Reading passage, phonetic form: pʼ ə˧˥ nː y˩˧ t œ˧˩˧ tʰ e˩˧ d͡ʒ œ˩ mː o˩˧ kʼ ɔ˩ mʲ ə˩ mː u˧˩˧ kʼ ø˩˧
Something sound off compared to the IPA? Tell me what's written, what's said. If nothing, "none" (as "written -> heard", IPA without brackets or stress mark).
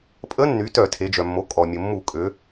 none